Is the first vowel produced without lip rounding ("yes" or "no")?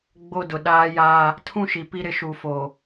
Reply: no